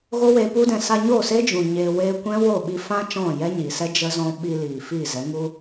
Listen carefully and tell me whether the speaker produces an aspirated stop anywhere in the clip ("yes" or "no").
no